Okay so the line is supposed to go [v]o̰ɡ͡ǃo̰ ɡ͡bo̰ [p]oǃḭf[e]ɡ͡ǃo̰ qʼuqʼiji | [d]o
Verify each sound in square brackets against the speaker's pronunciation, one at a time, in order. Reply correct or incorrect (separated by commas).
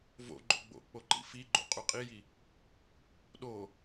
correct, incorrect, incorrect, incorrect